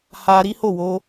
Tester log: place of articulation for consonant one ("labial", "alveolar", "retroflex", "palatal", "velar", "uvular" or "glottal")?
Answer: glottal